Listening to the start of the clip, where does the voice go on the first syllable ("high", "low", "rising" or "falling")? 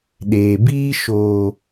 low